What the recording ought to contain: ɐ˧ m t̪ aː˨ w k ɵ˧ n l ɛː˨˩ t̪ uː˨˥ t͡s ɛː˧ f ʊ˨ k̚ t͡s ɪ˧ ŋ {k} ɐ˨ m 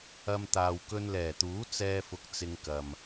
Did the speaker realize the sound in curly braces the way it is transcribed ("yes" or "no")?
yes